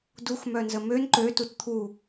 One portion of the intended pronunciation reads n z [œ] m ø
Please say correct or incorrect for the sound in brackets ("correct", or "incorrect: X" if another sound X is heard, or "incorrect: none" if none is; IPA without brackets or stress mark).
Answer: incorrect: ə